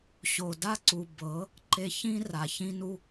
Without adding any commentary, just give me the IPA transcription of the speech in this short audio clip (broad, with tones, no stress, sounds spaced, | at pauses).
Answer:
ɕ o˨ d a˦ ǀ u˨ b ɤ˨˦ | ǃ e˧ ç ĩ˦ r a˨ ç ĩ˦ n u˦